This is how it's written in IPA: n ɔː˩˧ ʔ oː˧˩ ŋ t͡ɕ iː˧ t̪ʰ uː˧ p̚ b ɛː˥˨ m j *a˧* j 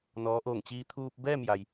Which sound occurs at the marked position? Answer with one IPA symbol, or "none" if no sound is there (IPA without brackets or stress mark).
a˩